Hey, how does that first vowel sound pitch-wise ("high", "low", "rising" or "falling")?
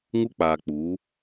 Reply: high